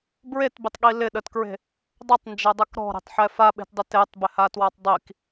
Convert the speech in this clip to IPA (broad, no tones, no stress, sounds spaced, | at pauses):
b ɹ e t b ɪ tˤ ɠ i l ɪ ɗ ə t k ɹ e̤ | dˤ ə tˤ n d͡ʒ ɛ dˤ ɛ k ɾ ɔ̤ ɾ e̤ tˤ ħ ɛ f a ɓ e̤ t dˤ ɪ t e tˤ b ɪ h a t w a tˤ dˤ i k